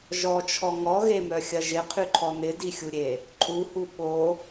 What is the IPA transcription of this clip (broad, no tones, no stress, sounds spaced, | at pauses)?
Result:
ʒ ɔ t͡ʃʰ ɔ ŋ ɔ ɣ e m œ xʲ ɐ ʒ ɪ qʰ y ǃʰ ɔ n ɪ d i xʲ u ɾʲ e | ǃʼ u h u ɓ o